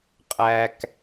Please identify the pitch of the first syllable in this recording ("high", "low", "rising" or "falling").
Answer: low